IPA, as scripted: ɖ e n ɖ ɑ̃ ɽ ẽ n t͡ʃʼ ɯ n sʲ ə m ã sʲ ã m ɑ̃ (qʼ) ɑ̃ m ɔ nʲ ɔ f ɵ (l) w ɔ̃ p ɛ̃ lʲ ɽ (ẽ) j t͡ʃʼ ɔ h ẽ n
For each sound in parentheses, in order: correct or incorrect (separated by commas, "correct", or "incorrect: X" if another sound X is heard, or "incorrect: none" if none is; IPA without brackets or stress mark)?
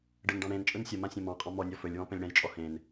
correct, incorrect: lʲ, incorrect: ɛ̃